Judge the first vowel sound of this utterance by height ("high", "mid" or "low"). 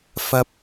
low